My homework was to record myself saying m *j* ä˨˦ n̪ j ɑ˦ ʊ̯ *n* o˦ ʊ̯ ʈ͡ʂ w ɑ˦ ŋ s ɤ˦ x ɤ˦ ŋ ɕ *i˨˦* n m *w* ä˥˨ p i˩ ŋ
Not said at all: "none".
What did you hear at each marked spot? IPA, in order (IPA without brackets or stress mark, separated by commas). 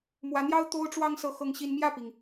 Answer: w, t̪, i˦, j